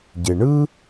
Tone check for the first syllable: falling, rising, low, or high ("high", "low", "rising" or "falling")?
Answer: low